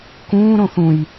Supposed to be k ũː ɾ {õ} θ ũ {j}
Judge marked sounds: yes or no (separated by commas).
yes, yes